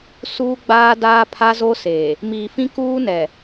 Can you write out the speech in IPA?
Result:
suː˦ɡ͡baː˦daː˦ pʰa˦ zo˦seː˨ | miː˨fĩ˦kuː˦nɛ˨

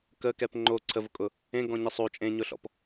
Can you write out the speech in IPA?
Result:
kəkɛp ŋ͡ǃo ǀʰəvʊkʼʊ | ẽɡɔ̃ɲə sˤo t͡ʃʼẽɲʊɬɔ̰p

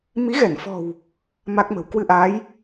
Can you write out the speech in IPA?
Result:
mi˨˦ɣɛ˧˩nfɔ̤˨˩w | ma˦˥k̚mə̤˨˩w kwɨ˧ʔaː˨˦j

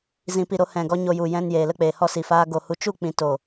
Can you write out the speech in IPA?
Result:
zĩ˨pi˨ ɾo˧hɛ̃˨ɡɔ˧ ɲo˧ju˨ jɛ̃˧njeː˨lə˧ k͡peː˨hɔ˦si˨faː˦ ɡo˧hu˧ t͡ʃu˦˨k͡pĩ˨to˨

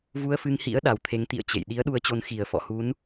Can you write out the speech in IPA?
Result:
vu˧ə̯fɨ˧ŋhḭ˧˥ə̯ ɗa˨˩wt̪ʰe˨˦ŋt̪ḭ˧˨ə̯ t͡ɕḛ˧˨j ɗi˨˦ə̯ɗu˨˦ə̯t͡ɕo˨˦n xi˨˩ə̯ fɔ̰˧˨hu˨˦n

